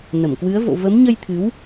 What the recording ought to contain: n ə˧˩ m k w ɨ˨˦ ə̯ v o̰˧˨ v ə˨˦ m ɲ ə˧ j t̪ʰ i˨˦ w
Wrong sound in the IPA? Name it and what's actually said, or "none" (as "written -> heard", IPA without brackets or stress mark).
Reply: i˨˦ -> ɨ˨˦